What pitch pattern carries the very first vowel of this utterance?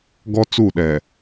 high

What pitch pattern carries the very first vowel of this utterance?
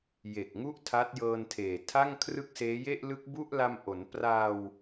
low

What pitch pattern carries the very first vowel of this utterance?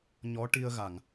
rising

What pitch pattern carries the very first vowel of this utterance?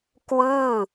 falling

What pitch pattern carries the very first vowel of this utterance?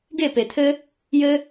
falling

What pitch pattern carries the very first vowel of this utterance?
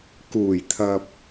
low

